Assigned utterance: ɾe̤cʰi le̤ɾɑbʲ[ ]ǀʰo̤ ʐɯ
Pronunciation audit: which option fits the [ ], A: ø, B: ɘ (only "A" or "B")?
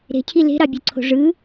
A